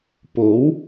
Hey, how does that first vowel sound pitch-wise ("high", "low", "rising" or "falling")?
rising